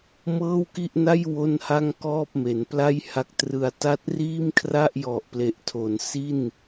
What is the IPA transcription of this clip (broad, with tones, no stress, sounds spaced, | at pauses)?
m ɤː˥˩ w k i˥˩ ʔ n a˥˩ j w o˥˩ n h a˥˩ ŋ k ɔː˥˩ p̚ m e˩˦ n p l a˥˩ j h a˦˥ k̚ t r ɯ˧ a̯ t a˥˩ t̚ r iː˥˩ m kʰ r a˥˩ ʔ j ɔ˨˩ ʔ p l e˨˩ ʔ tʰ o˩˦ n s i˥˩ n